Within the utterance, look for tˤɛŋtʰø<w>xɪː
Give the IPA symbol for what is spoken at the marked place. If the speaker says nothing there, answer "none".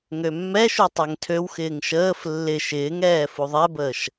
w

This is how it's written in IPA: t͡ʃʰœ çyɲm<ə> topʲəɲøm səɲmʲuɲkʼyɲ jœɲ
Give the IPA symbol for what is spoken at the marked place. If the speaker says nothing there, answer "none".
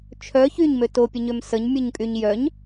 ø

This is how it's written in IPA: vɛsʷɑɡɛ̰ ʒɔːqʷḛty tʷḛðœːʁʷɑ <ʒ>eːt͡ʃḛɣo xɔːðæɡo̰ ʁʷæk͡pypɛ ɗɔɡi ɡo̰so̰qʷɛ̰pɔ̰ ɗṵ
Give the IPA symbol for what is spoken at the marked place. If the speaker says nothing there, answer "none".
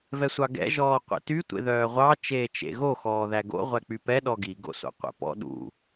t͡ʃ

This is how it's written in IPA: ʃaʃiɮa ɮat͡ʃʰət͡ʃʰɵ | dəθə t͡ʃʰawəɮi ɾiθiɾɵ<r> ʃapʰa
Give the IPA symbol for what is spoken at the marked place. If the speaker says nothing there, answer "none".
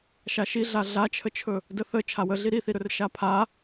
r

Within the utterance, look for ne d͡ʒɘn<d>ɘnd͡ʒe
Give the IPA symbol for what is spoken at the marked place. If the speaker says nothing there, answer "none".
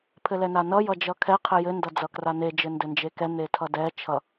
d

